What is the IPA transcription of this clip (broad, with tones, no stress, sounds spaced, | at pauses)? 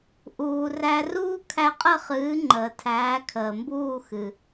ʔ uː˩ r æ˧ r uː˥ kʰ æ˧ qʼ ə˥˩ χ ɨː˩˥ ŋ͡ǃ əː˩ tʰ æː˩˥ kʰ əː˩ m b uː˥˩ x ɨ˩